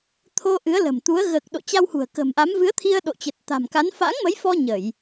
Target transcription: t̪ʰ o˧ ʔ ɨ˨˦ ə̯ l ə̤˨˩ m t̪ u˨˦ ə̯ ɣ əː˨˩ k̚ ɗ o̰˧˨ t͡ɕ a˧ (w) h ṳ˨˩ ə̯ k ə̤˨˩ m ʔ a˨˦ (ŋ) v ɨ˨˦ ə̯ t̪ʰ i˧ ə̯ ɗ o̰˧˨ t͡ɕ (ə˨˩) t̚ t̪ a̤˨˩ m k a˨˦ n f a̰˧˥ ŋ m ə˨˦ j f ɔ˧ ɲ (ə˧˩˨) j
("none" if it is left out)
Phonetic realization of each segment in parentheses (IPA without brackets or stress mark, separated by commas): w, m, ə˨˩, ə˧˩˨